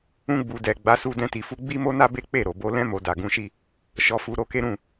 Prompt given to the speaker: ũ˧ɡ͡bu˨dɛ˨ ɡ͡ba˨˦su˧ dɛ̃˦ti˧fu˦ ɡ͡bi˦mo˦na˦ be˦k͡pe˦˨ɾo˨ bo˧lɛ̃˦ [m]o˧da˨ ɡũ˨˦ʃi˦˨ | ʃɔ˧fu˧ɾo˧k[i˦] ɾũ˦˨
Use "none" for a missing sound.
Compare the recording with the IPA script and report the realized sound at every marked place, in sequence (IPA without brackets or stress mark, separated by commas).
m, e˦